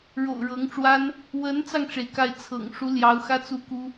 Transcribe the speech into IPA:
ɻo̰˨˩ʊ̯ ɻɤ˧˥ŋʈ͡ʂwa˥n | wə˧˥nt͡sɑ˧ŋʈ͡ʂe˩ɪ̯ ka˥˩ɪ̯t͡sʰɤ̰˨˩ŋ ʂu˧˥ljɑ˧˥ʊ̯ xä˥t͡su˥ku˥

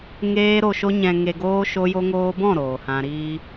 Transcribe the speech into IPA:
ŋeː˧ ɾo˨ʃo˧ ɲɛ̃˨ŋe˨ɡoː˧ ʃo˧jo˧ŋoː˧ bɔ̃˦˨ ɾoː˨hã˧ɾiː˦

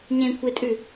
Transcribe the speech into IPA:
ɲẽkʷʰetʼʉ

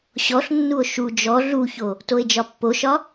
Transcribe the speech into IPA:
ɕɔɬnːuo̯ ʃu d͡ʒɔ ɮuço | toe̯d͡ʒɒpːoʃɒ

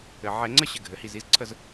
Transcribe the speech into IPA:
ɘ˩ʕɛ˨˩˦ ŋ͡ǀə˦ɕɘ˩ ɡʱɘ˩hi˧˩zi˦zǀʰə˥˨z

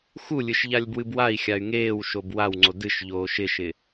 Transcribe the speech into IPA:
xulʲɨʃ ʎalʲbwɨbwai̯xʲay̯ ŋeːwʃob wawŋ͡ǀo dɨʃ ʎoːʃɪʃɪ

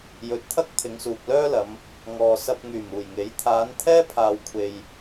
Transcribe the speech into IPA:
jɵ˨˥t̚t̪ʰɐ˥k̚ t̪ʰɪ˨˧ŋsuː˨k̚lœː˥lɐ˨˧m | ŋɔː˨sɐ˧p̚ ŋyː˨˩muː˨˩jŋe˨˥j t̪ʰaː˨˧n t̪ʰɛː˥pʰaː˨wkʷʰe˨j

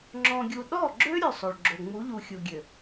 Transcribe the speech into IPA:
ŋ͡ǁɔ̃˨ɡʲu˨ ɗɔ˦˨ɡ͡ǁø˦ ɾʲø˦˨sˤo˨ɭɡ͡ǁo˨ ŋ͡mu˨˦ʎu˨xʲu˨ɡʲø˨

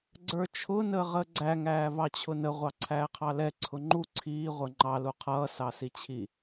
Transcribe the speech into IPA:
ɡ͡ǀə˞t͡ʃʰʊ nəːʁəːɡ͡ǀæ ŋæːvɑt͡ɕʰʊnə ʁʷɑǀʰæːqʰɑlɛ ǀʰʊŋ͡ǃu ǀʰiː ʁʷə˞ŋ͡ǃɑ luqʰʌː sɑsit͡ɕʰi

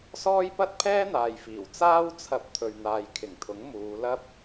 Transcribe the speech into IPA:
sɔː˥j pɐ˥t̚pʰɛː˥n̪aː˨jfiː˨˩w t͡saː˥wt͡sʰɐ˧p̚ t̪ʰɵ˨ɥn̪aː˨jkʰɪ˨˩ŋt̪ʰʊ˨˥ŋ muː˨˧lɐ˥p̚

